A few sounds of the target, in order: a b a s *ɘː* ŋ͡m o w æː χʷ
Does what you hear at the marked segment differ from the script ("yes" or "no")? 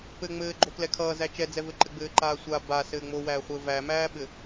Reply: no